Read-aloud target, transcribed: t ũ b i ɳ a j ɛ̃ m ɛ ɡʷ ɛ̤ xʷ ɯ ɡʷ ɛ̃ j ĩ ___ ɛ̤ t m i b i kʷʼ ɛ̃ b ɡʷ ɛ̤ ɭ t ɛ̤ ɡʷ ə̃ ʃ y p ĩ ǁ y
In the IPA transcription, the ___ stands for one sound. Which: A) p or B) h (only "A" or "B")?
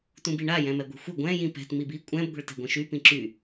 A